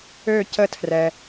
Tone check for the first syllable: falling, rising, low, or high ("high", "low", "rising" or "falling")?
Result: falling